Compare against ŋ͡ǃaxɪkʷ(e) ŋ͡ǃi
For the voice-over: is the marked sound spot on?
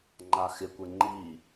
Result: yes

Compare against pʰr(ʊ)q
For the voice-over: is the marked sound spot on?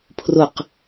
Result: yes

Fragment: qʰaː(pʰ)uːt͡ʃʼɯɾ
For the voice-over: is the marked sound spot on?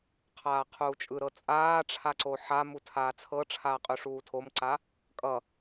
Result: no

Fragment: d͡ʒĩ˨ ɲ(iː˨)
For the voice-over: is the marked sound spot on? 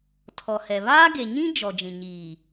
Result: yes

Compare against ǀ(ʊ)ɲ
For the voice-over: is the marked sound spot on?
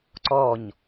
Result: no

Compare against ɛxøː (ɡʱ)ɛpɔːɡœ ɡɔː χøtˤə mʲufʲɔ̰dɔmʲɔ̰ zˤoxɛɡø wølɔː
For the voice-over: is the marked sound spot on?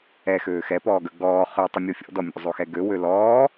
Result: no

